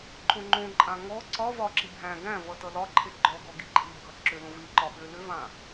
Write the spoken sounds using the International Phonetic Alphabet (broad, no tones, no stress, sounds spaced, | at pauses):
ǃ õ ŋ͡ǃ õ ǃʼ ã ŋ ɔ ǀ ɒ v ɒ ǁ i bʱ æ̃ ɡ æ̃ v ʌ t ʌ l ɒ ǃʰ e ɡ͡ǃ ɔ ɡ ɔ ɡ i ǃʼ i bʱ ʌ ǁ ʏ l õ v i ǃ ɒ ɓ ʏ l ʏ v ã